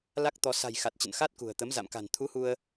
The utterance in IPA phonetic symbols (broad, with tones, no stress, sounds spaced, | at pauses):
l a˦˥ k̚ t̪ ɔ˧ s a̤˨˩ j x a˨˩ t̚ t͡ɕ ə̰˧˨ n x a˦˥ t̚ k ṳ˨˩ ə̯ t̪ ə˨˦ m z a̰˧˨ m k a̤˨˩ n t̪ʰ u˨˦ h u˧ ə̯